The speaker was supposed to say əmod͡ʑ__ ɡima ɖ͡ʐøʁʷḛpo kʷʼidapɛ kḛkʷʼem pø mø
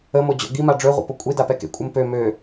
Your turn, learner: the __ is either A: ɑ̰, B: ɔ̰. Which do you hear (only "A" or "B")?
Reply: B